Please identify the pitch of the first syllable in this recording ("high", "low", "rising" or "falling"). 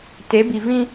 rising